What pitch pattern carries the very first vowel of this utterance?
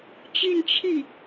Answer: falling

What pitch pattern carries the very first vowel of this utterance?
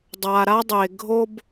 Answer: low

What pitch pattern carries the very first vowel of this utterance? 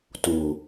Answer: low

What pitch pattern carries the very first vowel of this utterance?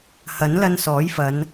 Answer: rising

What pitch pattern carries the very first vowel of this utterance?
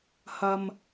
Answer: low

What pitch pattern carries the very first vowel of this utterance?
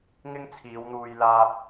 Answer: high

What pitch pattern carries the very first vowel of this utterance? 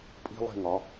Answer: high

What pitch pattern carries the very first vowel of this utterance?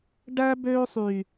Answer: high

